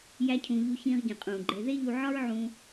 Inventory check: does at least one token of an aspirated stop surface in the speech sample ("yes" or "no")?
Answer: yes